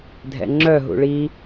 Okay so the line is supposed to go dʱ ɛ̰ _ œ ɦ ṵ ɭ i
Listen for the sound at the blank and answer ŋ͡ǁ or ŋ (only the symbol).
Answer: ŋ͡ǁ